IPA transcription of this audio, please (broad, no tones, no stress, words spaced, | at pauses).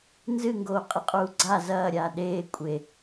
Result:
nzɨŋɡoː qʼiqʼuːɡ͡ǀa zɐːɾʲaː ɗeː kʷʼe